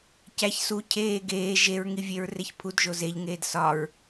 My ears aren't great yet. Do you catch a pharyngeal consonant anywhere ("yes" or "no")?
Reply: no